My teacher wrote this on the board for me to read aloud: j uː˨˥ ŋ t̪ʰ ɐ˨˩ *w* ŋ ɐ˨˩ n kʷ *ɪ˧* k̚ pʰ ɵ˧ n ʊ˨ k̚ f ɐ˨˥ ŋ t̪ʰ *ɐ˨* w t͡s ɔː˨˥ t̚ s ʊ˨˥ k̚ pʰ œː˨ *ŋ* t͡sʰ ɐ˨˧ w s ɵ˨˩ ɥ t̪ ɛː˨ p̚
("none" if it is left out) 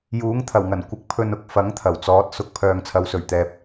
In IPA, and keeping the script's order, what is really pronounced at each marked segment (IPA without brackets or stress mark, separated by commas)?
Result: w, ɪ˨˥, ɐ˨˩, ŋ